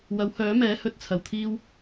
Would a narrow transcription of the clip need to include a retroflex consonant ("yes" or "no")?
no